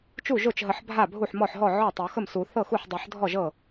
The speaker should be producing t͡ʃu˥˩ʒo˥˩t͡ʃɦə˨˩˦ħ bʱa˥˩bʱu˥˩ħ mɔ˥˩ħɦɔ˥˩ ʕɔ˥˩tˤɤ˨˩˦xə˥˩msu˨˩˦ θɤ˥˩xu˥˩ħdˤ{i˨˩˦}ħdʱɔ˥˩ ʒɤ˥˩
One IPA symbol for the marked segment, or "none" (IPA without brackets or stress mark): i˨˩˦